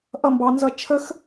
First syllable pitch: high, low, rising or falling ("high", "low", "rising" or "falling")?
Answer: falling